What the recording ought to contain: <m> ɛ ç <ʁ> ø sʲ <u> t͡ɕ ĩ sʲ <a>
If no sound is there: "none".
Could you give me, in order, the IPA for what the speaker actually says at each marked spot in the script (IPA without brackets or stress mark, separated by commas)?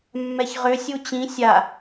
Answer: mː, ʁ, u, a